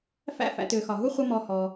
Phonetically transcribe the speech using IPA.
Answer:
f æ̰˦ f æ̰˨ t ʏː˩ x ɒ˩ ɦ u˥ χʷ ə˦ m ɔ˨ h ɔː˩

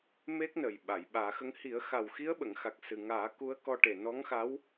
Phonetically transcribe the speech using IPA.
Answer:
m e˦˥ k̚ n ə˨˩ j ɓ a˨˩˨ j ɓ aː˨˩˦ x ə˧ ŋ h i˨˩˦ ə̯ x a˨˩ w x i˧˥ ə̯ ɓ ə˨˩˨ ŋ x a˨˩ k̚ s ɨ˨˩ ŋ aː˨˩˦ k u˧˥ ə̯ k ɔ˧ ʈ e˨˩ n ɔ˧˥ ŋ x a˧˥ w

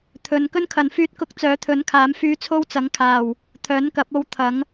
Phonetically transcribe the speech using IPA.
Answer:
t̪ʰ ɵ˨ n k ɵ˥ n kʰ ɐ˨ n f yː˧ t̚ k ʊ˧ k̚ t͡s œː˨˥ t̪ʰ ɵ˨˥ n kʰ aː˨˥ m f yː˧ t͡sʰ o˥ w t͡s ɐ˨˥ ŋ kʰ aː˨˩ w | t̪ʰ œː˨˥ n k ɐ˨˥ p̚ o˧ w t̪ʰ ɐ˨˥ ŋ

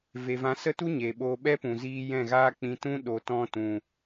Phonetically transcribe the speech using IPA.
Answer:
v e˨ v ã˨˦ s ə˦ t u˦ ɲ e˨ ɓ oː˧ ɓ ɛ˦ p ũ˨ z iː˧ j ɛ̃˦˨ ɣ aː˦ k͡p ĩ˧ t ũ˦ ɗ o˨ t ɔ̃˧ t ũ˨

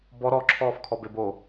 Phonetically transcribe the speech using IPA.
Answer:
b ɔ ɾ ɔ ǁʰ ɔː f kʰ ɔ b e b o

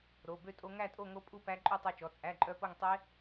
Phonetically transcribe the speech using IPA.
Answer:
ɾ o˩˧˩ b ø˥˧ tʼ o˦˥ ŋ æ˥˧ tʼ o˥˧ ŋ o˦˥ pʼ u˥˧ p æ˦˥ ǃʼ ʉ˥˧ tˤ o˦˥ t͡ʃ ɔ˩˧˩ t͡sʼ æ˧˥˧ ǃʼ œ˦˥ p o˥˧ ŋ tˤ e˦˥

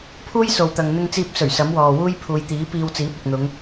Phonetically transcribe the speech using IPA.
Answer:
pʰ uː˥ j s o˨ w t̪ ɐ˨ ŋ n̪ ɪ˧ ŋ t͡s iː˧ p̚ s ɵ˨˩ ɥ s ɐ˨˥ m w ɔː˨ w uː˥ j pʰ uː˨˧ j t̪ iː˨˥ p iː˧ w t͡s iː˨˥ p̚ ɐ˨ k̚ n̪ ʊ˨˧ ŋ

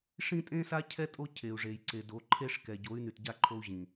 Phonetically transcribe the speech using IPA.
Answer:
ʂ ĩ˦ tʼ ẽ˦ s a˦ cʰ ɛ˦ tʼ o˦ cʰ e˨ u̯ ʐ e˨ j ǀ e˨ d o˨˦ ǃʰ e˦ ʂ k ɛ˨ ɟ o˨˦ y̯ n y˨ t ɟ a˦˨ ǃʰ o˦ u̯ ʑ ĩ˨

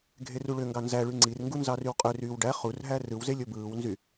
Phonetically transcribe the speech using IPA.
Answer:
ɡʱ e r u ɭ ø ŋ ɡ ɑ n z æ ɭ y ŋ͡ǀ i r ŋ ɡ u n z ɑ r y w qʼ ø r yː w ɖ æ χ u r ɦ æ r ɯ w z e lʲ o b ɯː w n z y

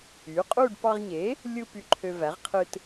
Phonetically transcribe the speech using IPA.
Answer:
y˩˥ qʼ u˥˧ ɖ p ɑ˧ ʁ ɲ e˩˥ | lʲ ɯ˧ p y˧ ǃʰ ø˧ v æ˩˥ ʁ qʰ ɯ˧ t

